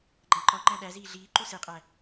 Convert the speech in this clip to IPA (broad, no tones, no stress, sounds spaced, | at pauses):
ɡ͡ǃ æ̃ ǃ ɒ ŋ͡ǃ æ̃ ɗ æ z iː ɮ iː ǃ u s e qʼ æ